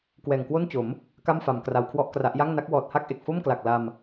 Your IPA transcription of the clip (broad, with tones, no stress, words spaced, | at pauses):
kwɛː˨˩ŋkwo˥˩nt͡ɕo˩˦m | ka˥˩mfa˩˦m kra˧wkʰwɔ˥˩ʔkra˦˥ʔ ja˥˩ŋna˦˥k̚ wɔː˨˩t̚ha˥˩k̚ʔe˨˩k̚ fo˥˩mkla˨˩k̚la˧m